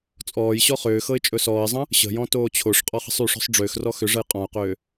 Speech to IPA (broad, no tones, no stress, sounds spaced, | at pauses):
t͡sʼ ɔː j ɕ ɔ χ ʏː x ɤ ɪ̯ t͡ʃʼ ɵ s ɔː ɪ̯ zˤ ə̃ | ɕ ə̤ j ɔ̃ t oː t͡ɕʰ o ʂ qʼ ɔ χ ə̤ sˤ y ʂ ɔ̤ sˤ ɖ͡ʐ ʏː x r ɔ x ʏ ʐ ə j qʼ ɔ̃ ʊ̯ q ʏː